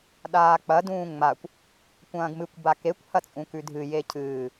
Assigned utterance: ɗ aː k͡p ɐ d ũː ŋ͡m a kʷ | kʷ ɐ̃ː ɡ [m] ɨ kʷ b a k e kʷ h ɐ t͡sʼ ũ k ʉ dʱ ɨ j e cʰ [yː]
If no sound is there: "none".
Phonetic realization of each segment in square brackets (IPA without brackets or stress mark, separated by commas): m, ɨː